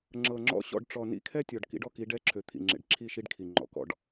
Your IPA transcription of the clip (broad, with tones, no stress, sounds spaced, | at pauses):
ŋ͡ǁ ɤ˨ ŋ͡ǁ ɔ̰˦ ɕ ɔ̰˦˨ ɖ ʈ͡ʂ ɔ˨ n ḭ˦ kʰ ɛ˦ tʲ ɔ˨ ɖ k ḭ˦ ɖ ɔ˦ k i˨˦ ɖ ɛ˦ ǁʰ ø˨ t̪ʰ ḭ˨ ŋ͡ǁ ḛ˨ ɖ ǁʰ i˦˨ ʃ i˦ ɖ kʰ i˨ ŋ͡ǃ ɔ̰˨ k ɔ̰˦˨ ɖ